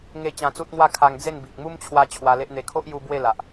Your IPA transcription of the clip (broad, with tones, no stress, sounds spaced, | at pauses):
ŋ e˥˧ t͡ɕ ã˧ t͡s u˦ t̚ ŋ w a˥˧ kʰ a˧ ŋ d͡z e˥˧ n b i˨ k̚ m u˦ m t͡ɕʰ w a˧ t͡ɕʰ w a˧ l e˦ ʔ n̪ e˧ kʰ o˦ ʔ j u˧ b w e˥˧ l a˨ ʔ